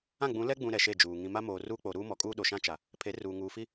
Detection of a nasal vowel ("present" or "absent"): present